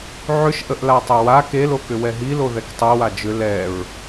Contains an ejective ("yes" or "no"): no